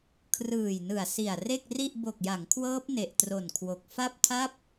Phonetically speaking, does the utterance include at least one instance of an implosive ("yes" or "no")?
no